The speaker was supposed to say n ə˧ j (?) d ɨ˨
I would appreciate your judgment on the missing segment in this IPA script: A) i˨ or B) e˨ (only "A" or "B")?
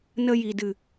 A